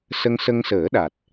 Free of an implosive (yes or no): no